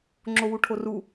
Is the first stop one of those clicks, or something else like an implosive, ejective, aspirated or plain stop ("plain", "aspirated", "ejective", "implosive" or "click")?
click